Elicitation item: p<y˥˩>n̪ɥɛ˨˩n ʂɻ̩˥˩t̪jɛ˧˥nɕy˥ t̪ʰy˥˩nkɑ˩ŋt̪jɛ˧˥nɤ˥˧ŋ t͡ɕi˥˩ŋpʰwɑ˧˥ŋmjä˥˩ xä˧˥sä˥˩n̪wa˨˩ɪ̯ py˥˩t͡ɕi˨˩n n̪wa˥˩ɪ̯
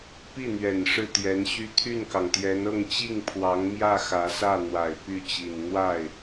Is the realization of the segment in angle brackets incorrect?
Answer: yes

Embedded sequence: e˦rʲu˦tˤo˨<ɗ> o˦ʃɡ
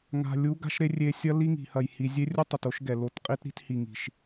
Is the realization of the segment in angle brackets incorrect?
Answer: yes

